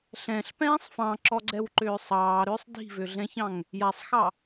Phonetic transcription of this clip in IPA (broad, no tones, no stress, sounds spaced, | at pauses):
ɬ ɛ̃ ɬ p ɛ̃ː sˤ f ɑ̃ ǁ ɔ ɡ͡ǀ ɛ w ǃ ʏː sˤ ɑː ɾ ʏː sˤ d i̤ v ʏ ɮ ɛ̃ ç ɑ̃ ŋ | j a sˤ x ɑ